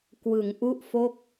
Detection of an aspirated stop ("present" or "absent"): absent